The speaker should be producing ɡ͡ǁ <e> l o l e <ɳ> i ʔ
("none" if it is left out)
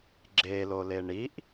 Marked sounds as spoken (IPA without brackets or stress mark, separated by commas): e, ɳ